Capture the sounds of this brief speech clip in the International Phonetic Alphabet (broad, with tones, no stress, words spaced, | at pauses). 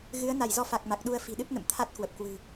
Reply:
ɣɨ˨˦ə̯na˧˩jzɔ˧ fa˨˩k̚ma˨˩k̚ ɗu˧ə̯fi̤˨˩ ɗɨ˦˥p̚nə̰˧˨mt̪ʰa˦˥t̚kwə˨˩p̚ kwɨ̤˨˩